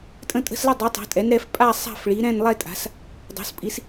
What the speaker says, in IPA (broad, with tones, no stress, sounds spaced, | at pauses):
tʼ ə̃˥˧ tʼ ə̤˥˧ s l ə˥˧ dˤ ɯ˩˥ tˤ ɛ̤˩˥ tʼ ɛ˩˥ n ɾ ɛ˩˥ f pʼ a˥˧ sˤ a̤˥˧ f ɭ i˩˥ ɾ ɛ̃˥˧ n lˠ ɛ˥˧ tʼ a̤˩˥ s | dˤ o̤˩˥ s pʼ i˩˥ s